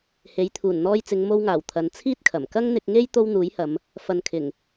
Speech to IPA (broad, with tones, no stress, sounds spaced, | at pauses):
h e˨˥ j t̪ʰ uː˨˩ n n̪ ɔː˧ j t͡s ɪ˨˧ ŋ m o˧ w ŋ aː˨˩ w t̪ʰ ɐ˨˧ n t͡sʰ iː˥ t̚ kʰ ɐ˨˩ m k ɐ˥ ŋ n̪ ɪ˧ k̚ ŋ e˥ j t̪ o˥ w n̪ uː˨˥ j h ɐ˨˧ m | f ɐ˨ n kʰ ɪ˨˩ ŋ